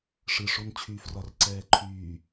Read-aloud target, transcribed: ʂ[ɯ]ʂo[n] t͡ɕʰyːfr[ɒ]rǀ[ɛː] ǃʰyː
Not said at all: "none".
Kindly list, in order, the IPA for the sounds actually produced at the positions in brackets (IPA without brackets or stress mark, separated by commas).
ɯ, n, ɒ, ɛː